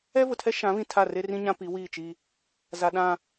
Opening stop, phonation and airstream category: aspirated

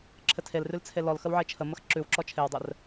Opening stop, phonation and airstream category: click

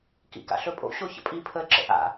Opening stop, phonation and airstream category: plain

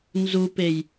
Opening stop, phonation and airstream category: plain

